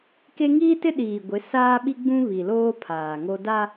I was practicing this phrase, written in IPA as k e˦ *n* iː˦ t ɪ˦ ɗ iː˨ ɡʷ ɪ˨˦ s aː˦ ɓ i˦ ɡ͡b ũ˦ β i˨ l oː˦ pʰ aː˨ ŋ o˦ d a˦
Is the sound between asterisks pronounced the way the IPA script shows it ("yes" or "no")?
no